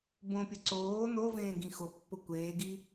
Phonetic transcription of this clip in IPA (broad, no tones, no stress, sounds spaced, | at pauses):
b õ pʲ ʊ ǀ oː n o v ẽː ɡ ĩ x o pː ʊ kʷ eː ɡ i